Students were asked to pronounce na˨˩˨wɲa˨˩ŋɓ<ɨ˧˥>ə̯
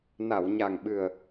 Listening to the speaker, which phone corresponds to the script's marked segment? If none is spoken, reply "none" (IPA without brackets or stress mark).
ɨ˨˩